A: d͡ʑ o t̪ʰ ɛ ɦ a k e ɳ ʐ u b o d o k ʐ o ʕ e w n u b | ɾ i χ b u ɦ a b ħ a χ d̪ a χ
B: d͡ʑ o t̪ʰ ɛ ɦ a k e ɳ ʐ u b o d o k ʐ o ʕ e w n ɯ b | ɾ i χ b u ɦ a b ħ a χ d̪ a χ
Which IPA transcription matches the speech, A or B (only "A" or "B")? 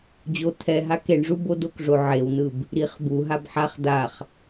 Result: B